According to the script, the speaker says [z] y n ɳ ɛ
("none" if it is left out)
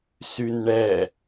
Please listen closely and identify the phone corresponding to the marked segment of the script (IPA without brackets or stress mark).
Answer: s